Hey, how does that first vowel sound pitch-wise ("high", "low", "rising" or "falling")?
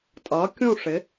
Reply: rising